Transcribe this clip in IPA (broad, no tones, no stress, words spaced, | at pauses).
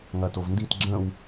ŋɐtovndit ɡ͡ǁə̃w